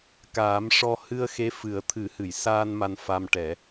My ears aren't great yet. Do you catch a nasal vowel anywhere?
no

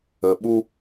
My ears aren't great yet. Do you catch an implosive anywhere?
yes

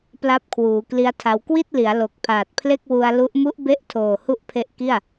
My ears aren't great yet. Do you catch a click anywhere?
no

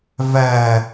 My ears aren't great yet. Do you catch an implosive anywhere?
no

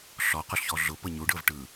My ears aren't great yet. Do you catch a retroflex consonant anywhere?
yes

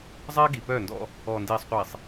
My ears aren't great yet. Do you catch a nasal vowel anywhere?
no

